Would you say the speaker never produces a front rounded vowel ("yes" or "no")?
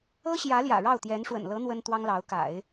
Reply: yes